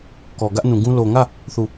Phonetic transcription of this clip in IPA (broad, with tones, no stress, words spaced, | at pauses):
kɔ˨ ɡä˦ʔnũ˨ɡũ˦ lo˨ŋä˦˨ | θu˦˨